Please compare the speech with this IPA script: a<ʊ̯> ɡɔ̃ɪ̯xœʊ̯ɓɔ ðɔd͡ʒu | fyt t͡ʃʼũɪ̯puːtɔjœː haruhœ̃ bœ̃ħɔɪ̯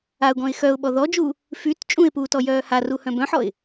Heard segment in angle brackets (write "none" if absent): ʊ̯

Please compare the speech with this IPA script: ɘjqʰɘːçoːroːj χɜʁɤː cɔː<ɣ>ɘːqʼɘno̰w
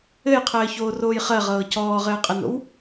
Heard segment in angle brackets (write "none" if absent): ʁ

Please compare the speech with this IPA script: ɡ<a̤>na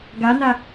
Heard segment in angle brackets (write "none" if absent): a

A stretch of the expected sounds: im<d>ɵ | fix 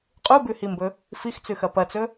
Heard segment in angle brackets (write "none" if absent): b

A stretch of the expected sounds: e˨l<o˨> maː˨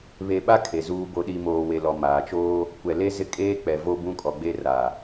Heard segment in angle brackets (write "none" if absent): ɔ˨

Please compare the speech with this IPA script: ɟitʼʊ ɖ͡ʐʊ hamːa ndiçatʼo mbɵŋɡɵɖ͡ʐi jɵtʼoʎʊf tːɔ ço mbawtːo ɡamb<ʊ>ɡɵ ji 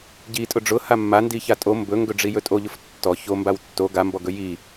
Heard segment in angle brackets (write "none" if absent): ɔ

